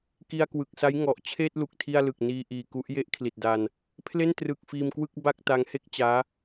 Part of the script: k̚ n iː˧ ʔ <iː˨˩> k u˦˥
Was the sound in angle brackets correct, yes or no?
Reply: yes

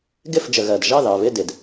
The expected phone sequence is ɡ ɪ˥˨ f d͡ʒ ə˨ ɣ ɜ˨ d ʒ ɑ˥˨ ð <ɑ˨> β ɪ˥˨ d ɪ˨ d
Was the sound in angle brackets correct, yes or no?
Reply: yes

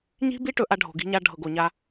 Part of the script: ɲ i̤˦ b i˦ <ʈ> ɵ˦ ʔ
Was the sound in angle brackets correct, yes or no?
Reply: yes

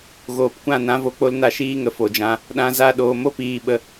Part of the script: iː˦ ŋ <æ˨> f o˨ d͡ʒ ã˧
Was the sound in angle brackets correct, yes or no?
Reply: no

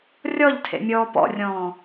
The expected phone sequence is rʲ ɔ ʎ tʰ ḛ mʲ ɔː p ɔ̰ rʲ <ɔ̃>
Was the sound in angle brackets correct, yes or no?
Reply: no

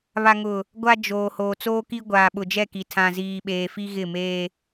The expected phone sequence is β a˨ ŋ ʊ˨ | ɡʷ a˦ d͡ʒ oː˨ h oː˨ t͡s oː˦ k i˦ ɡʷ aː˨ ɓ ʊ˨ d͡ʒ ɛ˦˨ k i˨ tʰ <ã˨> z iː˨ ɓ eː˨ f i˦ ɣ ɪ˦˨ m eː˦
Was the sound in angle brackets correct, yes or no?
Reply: yes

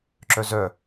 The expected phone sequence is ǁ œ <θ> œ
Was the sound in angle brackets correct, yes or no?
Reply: no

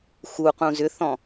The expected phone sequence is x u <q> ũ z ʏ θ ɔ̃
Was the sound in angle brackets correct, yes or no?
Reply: yes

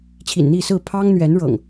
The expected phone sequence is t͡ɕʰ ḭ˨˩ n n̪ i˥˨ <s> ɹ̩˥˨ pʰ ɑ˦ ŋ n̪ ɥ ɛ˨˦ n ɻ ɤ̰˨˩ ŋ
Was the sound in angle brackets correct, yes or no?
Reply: yes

